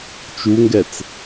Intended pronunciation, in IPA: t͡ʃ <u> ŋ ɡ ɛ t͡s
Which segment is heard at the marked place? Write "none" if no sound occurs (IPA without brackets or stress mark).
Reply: u